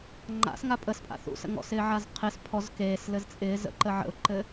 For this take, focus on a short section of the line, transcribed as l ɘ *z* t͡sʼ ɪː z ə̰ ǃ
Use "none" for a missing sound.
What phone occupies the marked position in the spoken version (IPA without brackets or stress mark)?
z